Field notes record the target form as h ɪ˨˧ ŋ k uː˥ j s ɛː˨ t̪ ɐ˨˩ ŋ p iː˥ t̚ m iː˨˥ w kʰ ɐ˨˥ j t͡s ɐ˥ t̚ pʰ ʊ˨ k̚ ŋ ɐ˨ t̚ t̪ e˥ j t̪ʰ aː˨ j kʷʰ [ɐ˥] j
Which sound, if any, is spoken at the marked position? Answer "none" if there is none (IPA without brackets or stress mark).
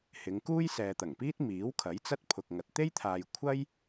ɐ˥